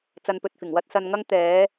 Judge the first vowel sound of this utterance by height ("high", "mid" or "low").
low